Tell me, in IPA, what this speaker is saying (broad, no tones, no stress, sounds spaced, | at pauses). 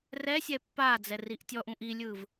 r ɛ sʲ ɛ pː a d͡z ɛ r i ʔ tʲ ɔ ʔ ũ ʔ i lʲ ɯː v